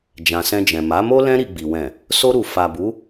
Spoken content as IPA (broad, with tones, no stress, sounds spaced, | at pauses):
d͡ʒ ã˨ s ɛ̃˧ d͡ʒ ɛ̃˨ m a˨˦ m o˦ l ɛ̃˦ ɾ i˧ ɡ͡b i˨ w ɛ̃˨ | s o˧ ɾ u˨ f a˨ b u˨˦